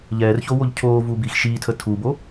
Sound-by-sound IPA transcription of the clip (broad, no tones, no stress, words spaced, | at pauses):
ʎɛːrçowoʎ cʰoːvuːbiːx ʃiːtʰə tʰubo